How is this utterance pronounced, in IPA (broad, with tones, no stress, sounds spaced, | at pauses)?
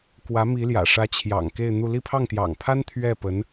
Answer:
k w ä˧˥ m i˧˥ l j ä̰˨˩ ʂ ä˧˥ t͡ɕʰ j ɑ̰˨˩ ŋ k e˥˧ ɪ̯ n̪ u˥˧ l i˥˧ pʰ ɑ˥˩ ŋ t̪ j ɑ̰˨˩ ŋ pʰ a˥ n t̪ʰ ɥ ɛ˥˩ p ə˧˥ n